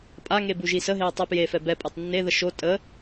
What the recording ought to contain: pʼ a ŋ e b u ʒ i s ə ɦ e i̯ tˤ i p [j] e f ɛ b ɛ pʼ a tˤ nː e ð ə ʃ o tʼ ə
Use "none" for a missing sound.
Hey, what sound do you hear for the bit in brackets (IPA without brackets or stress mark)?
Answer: j